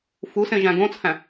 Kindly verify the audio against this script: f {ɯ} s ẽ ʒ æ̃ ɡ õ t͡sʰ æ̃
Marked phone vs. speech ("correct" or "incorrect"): incorrect